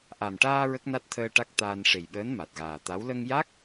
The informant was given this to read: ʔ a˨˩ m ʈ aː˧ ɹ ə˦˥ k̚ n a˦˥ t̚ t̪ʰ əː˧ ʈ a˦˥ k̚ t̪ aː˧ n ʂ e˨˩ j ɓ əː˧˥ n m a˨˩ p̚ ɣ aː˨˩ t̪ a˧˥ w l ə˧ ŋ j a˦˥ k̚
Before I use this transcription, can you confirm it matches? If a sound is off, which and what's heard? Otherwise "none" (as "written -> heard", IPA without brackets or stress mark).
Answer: p̚ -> t̚